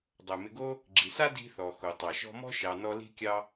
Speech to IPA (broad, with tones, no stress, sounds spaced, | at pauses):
dˤ o˩ m ɪ˨ ɡ o˦ | ɡ͡ǁ i˩ s a˥ d i̤˦ θ ɔ˩ x o˩ tˤ ɑ˩ ʃ ɔ̤˦ m ɔ̤˥ ʃ ɑ˨ n ɔ˦ l i̤˥ kʲ ɑ˥